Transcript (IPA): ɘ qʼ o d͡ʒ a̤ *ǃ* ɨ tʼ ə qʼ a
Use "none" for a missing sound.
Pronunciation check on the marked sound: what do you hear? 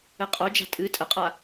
tʼ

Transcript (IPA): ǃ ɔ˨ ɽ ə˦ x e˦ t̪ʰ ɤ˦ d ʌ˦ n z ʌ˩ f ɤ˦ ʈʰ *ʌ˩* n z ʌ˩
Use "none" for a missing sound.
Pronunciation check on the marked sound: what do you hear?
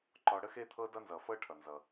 ʌ˩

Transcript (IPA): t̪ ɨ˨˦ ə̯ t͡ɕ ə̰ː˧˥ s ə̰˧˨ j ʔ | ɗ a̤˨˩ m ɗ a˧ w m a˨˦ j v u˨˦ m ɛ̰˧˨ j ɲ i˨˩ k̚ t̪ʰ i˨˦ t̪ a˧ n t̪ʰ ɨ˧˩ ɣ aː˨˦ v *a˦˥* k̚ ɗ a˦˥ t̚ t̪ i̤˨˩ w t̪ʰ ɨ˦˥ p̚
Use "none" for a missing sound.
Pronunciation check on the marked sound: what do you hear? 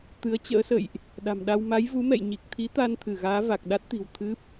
a˨˩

